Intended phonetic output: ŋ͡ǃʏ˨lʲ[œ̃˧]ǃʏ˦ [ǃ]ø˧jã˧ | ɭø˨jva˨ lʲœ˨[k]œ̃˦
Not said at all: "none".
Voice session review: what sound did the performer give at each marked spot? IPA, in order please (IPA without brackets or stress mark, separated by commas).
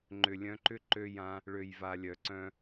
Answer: œ̃˧, ǃ, ǀ